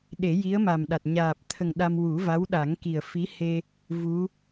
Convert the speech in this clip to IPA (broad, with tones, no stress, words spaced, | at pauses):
ɗe˨˩˦ji˧˥ə̯ma˨˩m ɗa˨˩t̚ ɲaː˨˩p̚t̪ʰə˨˩ŋ ɗa˧m wu˨˩˦va˧˥wɗa˨˩˦ŋki˨˩ə̯ fi˧˥ he˧ | vu˧˥